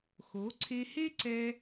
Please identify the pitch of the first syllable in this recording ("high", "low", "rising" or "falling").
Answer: rising